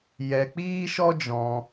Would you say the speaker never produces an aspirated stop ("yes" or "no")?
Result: yes